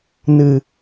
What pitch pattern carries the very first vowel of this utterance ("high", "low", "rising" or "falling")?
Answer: low